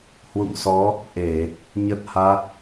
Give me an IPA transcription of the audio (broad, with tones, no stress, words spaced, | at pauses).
hwṵ˧˨ŋsɔ˨˦ | ʔe˧˩˨ | ɲə˦˥t̚ha˦˥t̚